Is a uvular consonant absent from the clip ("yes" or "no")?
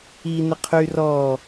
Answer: no